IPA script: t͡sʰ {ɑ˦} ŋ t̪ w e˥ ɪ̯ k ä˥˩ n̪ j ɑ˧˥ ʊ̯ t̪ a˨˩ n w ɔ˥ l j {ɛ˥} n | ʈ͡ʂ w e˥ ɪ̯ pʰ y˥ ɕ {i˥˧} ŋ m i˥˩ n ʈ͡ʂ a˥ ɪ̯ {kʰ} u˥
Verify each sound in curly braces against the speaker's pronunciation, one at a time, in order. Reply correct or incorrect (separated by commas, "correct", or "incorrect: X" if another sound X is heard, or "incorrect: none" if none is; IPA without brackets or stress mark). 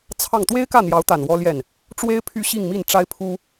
incorrect: ɑ˥˩, incorrect: ɛ˥˩, correct, incorrect: pʰ